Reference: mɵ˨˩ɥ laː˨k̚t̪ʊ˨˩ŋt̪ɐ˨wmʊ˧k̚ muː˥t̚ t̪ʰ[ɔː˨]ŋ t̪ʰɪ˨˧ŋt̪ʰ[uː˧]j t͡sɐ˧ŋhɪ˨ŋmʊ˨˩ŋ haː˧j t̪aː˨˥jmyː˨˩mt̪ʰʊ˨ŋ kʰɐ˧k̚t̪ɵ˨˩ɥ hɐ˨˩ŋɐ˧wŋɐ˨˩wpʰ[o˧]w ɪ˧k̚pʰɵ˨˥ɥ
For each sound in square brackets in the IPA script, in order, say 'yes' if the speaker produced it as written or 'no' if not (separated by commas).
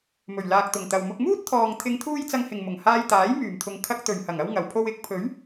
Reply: yes, yes, yes